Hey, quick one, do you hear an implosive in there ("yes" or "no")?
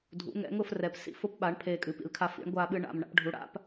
yes